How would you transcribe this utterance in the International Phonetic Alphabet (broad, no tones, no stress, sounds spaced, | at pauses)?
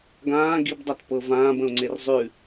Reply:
ɡ ãː ɡ i b dˤ a t p ɤ v ãː b ə̃ ʊ̯ ŋ͡ǀ e r zˤ ʉ